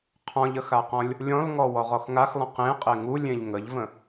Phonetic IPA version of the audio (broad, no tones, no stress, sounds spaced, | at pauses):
qʰ ɔ̃ ʎ ə x a q ɔ̃ lʲ | lʲ ɔ̃ l ŋ ɔ w ɔ ʁ ɔ x ŋ a x lˠ ə̃ q ẽ qʼ e ŋ u lʲ ẽ ʎ ŋ ə ʎ v ə̃